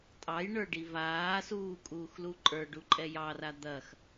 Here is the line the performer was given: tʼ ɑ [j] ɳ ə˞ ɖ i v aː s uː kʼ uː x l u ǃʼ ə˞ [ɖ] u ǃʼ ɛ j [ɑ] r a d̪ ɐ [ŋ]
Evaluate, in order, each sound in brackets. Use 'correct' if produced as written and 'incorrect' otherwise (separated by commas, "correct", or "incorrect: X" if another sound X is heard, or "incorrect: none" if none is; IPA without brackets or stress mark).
correct, correct, correct, incorrect: x